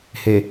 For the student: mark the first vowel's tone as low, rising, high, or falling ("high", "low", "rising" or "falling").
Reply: low